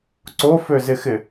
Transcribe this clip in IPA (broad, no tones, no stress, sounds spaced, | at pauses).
ǀ o f ø z ɪ x ɪ